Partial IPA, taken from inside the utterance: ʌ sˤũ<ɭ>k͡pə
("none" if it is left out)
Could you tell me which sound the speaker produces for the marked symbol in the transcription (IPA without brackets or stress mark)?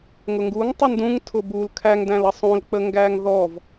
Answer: l